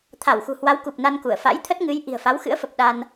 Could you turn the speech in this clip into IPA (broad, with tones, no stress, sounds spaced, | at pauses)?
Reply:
t̪ʰ a˧˩ w x ṳ˨˩ h w a˨˦ w k u˨˩ p̚ n a˧ n k u˧˩ ə̯ f a̰˧˥ j t̪ʰ ə˦˥ t̚ ŋ ɨ˨˦ j ʔ i̤˨˩ ə̯ f a˨˦ w x ɨ̰˧˥ ə̯ f ə˨˩ p̚ ɗ a˧ n